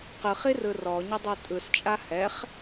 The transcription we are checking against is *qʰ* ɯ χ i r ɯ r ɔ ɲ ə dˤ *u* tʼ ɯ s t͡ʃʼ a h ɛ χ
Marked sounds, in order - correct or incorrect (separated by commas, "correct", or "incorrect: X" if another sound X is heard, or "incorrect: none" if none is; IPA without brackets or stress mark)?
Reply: incorrect: q, incorrect: y